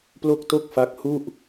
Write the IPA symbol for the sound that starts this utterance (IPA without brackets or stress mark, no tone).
p